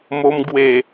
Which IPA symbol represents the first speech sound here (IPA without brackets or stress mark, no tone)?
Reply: m